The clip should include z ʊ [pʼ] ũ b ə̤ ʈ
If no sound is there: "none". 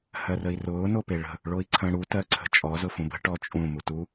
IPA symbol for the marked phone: f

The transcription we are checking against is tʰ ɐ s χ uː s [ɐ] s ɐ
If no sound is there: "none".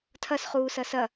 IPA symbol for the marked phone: ɐ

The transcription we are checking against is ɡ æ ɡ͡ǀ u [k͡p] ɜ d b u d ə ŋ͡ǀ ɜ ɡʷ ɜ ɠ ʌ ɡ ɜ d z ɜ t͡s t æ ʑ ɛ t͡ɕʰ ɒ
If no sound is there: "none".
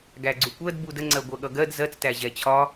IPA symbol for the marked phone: kʷ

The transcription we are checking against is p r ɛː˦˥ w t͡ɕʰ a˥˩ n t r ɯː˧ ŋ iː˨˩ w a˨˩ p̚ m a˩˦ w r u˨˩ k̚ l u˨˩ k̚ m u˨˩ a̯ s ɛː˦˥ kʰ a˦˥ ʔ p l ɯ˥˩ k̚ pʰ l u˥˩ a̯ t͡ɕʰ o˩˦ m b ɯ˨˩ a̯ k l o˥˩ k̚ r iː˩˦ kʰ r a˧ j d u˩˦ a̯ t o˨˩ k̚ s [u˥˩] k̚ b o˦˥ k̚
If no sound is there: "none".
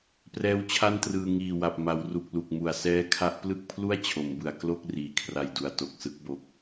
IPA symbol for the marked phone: ɯ˥˩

